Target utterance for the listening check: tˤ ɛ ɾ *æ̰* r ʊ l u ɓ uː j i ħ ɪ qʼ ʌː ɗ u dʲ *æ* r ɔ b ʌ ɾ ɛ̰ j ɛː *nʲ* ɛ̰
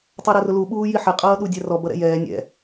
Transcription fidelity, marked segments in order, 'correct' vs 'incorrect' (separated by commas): incorrect, correct, correct